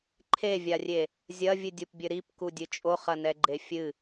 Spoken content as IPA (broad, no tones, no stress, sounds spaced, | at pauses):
ǃʰ e vʲ a rʲ e | zʲ ɐ vʲ ɨ dʲ u p bʲ ɘ ɾ i p k u dʲ ɨ t͡ʃʼ o χ ɐ n ɛ ɡ͡ǃ e fʲ ɨ